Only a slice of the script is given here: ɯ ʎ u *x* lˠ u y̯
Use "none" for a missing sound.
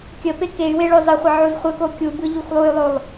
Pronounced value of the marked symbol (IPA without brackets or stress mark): x